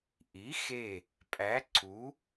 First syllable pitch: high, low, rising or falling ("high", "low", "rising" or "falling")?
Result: rising